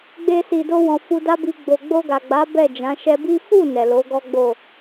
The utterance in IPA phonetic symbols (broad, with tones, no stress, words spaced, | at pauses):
ɡ͡be˧si˨do˧wɔ̃˨ fu˧da˦bi˧ ɡ͡bo˨ɡ͡bo˧ɡa˨ɡ͡ba˨˦ bɛ˦˨d͡ʒã˨˦ ʃɛ˧bi˦ fu˦˨ nɛ˨lo˨˦ɡɔ˦ɡ͡bo˦˨